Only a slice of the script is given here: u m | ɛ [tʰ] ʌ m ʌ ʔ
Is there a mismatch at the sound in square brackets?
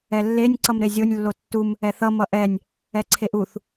yes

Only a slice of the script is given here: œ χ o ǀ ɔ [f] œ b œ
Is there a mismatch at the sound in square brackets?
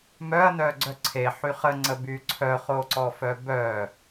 no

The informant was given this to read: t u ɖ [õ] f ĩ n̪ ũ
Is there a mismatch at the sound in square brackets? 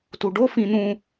yes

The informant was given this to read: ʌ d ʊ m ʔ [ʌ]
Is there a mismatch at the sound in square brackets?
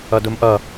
no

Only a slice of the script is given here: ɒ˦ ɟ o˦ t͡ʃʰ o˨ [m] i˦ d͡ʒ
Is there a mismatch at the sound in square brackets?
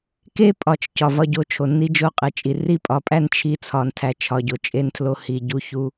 yes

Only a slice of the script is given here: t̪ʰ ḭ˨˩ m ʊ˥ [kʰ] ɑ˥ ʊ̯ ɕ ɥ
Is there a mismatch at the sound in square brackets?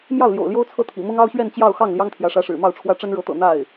yes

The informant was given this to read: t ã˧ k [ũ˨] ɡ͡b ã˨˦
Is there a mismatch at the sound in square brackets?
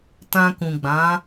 no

